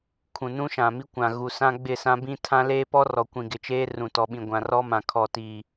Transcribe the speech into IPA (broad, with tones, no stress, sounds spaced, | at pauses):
kʰ ũ˨ n ũ˦ ʃ ã˨ m i˦ kʷ ã˨ ɣ u˨ s ã˦ ɡ͡b ɪ˦˨ s ã˦ b ĩ˦ tʰ ã˦ l eː˦ p ɔ˦ r ɔ˨ kʷ ĩ˨ ɡ ɪ˨ t͡ʃ eː˦ r ũ˨ t ɔ˨ ɓ ĩ˨ ɡʷ ã˨ r ɔ˦ m ã˨ kʰ ɔ˨ t i˨